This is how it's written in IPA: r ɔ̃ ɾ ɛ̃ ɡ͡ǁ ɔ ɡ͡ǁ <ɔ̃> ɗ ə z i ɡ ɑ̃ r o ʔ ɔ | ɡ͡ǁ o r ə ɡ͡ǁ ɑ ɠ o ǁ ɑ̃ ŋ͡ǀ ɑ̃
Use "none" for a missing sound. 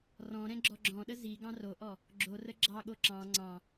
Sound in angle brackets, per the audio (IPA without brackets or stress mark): ɔ̃